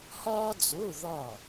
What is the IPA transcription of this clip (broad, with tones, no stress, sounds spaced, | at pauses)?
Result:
h ɒː˥ d͡z o˧˥˧ ð ɒ˥˨